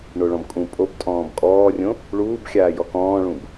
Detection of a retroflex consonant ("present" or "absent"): present